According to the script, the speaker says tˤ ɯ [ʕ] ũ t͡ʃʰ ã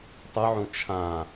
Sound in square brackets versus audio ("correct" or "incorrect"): correct